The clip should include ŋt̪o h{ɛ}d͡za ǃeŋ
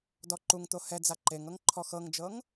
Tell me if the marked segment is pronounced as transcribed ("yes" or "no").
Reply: yes